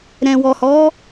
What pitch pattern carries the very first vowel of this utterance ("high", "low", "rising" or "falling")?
low